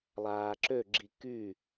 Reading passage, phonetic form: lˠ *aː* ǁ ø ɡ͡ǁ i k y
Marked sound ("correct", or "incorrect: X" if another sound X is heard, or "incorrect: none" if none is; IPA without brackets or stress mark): correct